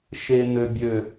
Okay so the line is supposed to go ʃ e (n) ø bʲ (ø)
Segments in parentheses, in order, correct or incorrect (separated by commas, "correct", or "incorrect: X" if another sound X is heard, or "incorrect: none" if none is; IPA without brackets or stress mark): correct, correct